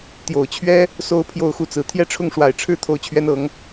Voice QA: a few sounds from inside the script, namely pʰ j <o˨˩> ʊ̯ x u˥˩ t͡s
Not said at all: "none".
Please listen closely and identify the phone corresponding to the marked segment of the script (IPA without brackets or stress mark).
o˥˧